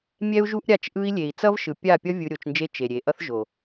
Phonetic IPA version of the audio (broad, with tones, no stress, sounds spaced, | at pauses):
mʲ ɛ˦ u̯ ʒ u˦ ʔ ɾʲ a˦˨ t͡ʃ ʔ ɯ˧ i̯ lʲ e˨ i̯ t͡s ʌ˦ v ʃ ɯ˨ pʲ a˦˨ pʲ ʌ˦ vʲ ɯ˧ ɾʲ o˨˦ t͡ʃ n d͡ʒ e˦ t͡ʃ e˨ ɾʲ e˨ ʔ ʌ˦ θ ʒ o˨